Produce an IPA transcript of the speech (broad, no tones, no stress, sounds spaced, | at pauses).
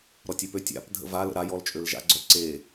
ɾ ɔ tʲ ø p ø tʲ a̰ p dʱ ə̰ v a l ə̰ ɾ a j ɔ l t͡ʃʼ ø l ʒ a̰ ɡ͡ǀ œ ǀ e